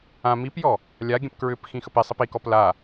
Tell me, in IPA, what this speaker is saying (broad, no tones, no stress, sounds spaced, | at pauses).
ã m i p j ɔ | lʲ a ɡʲ ə̃ p k ɹ ʏ p x ĩ x ə p i sˤ i p i k ɔ p l a